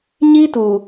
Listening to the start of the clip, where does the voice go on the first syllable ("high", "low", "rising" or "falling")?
high